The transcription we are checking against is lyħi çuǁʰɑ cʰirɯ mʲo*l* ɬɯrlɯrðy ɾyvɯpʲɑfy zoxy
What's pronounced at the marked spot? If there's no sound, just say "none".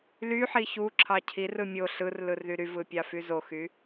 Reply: none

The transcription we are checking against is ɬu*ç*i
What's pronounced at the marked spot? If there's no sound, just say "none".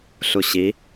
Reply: ɕ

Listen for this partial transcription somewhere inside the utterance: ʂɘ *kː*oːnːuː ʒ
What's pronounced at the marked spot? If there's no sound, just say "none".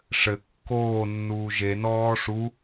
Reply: kː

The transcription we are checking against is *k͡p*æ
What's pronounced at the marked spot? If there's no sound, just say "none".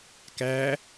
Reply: k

